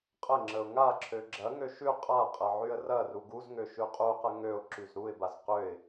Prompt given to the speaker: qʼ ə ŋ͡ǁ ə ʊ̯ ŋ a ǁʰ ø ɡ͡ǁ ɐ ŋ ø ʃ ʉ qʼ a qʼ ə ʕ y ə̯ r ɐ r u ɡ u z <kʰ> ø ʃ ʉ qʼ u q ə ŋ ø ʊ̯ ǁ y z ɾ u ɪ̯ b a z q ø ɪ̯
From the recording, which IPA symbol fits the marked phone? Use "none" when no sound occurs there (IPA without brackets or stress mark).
ŋ